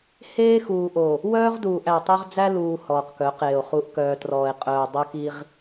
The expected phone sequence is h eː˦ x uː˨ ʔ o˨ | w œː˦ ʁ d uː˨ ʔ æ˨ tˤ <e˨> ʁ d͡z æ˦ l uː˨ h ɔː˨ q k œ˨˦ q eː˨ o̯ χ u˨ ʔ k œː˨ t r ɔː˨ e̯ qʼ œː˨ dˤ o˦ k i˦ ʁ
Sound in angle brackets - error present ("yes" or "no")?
yes